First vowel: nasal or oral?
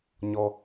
oral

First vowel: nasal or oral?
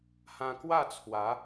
nasal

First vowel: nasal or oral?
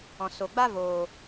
nasal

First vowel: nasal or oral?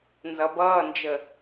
oral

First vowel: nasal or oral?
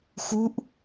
oral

